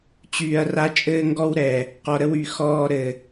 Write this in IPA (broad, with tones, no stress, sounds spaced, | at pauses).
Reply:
t͡ɕ yː˨ ɐ̯ r a˧ t͡ʃʼ ɘː˦ ŋ ɡ ɔ˦ w ɾ ɛ˨ | q ɔ˨ ɾ ə˧ w y˨ x ɔː˧ ɾ ɘ˨